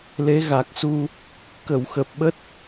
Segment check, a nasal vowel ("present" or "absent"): absent